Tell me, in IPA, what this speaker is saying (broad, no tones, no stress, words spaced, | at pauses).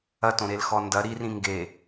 ɐtõɾelxɔ ndɐ ɾirĩ ŋɡe